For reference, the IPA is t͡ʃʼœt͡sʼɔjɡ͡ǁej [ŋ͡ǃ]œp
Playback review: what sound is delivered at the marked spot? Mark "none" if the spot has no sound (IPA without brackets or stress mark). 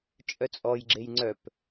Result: ŋ͡ǀ